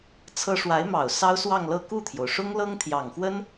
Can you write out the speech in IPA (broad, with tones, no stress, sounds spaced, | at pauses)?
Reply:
t͡sʰ ɤ˥ ʂ w a˧˥ ɪ̯ m ɑ˨˩ ʊ̯ s ɑ˥ ʊ̯ s w ɑ˥˧ ŋ l ɤ˥˧ k u˥˩ t̪ʰ j o˩ ʊ̯ ʂ ʊ˥ ŋ l ɤ˥ ŋ t̪ʰ j ɑ˨˩ ŋ x w ə˥ n